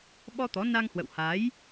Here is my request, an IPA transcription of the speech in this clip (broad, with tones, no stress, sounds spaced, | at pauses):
ɓ ɔ˧ t̪ ɔ˨˦ n a˧ ŋ h w ə̰˧˨ w h a˨˦ j